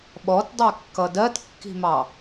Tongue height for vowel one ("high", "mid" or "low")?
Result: mid